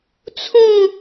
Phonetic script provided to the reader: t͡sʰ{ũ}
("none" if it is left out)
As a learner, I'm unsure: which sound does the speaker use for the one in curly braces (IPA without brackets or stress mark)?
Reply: ũ